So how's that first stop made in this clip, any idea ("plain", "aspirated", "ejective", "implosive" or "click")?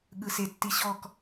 implosive